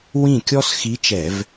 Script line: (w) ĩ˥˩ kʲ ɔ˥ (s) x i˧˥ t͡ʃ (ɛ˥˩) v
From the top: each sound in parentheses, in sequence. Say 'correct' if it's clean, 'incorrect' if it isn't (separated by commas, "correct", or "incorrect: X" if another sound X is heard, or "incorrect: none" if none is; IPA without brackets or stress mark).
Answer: correct, correct, incorrect: ɛ˧˩˧